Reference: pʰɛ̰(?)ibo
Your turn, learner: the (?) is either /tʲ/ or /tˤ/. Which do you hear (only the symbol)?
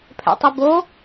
tˤ